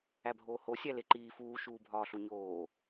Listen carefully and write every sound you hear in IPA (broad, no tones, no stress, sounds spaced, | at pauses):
æ bʱ oː h o sʲ æ l e ǃ iː f uː ʃ uː bʱ ɒː ɬ u ɲ oː